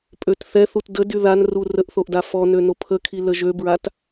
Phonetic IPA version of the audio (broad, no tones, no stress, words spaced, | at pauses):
pʼøtθɛθut dədy ðanru rəʔθoʔ dafɔnø nopʰəkʰi ləʒøbɹat